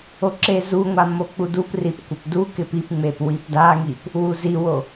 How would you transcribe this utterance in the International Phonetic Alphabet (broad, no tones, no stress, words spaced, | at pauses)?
oǁezuŋʷa mok͡puduprip kʷɪpdukɪp ipŋ͡mep wipdaŋip | wuziwo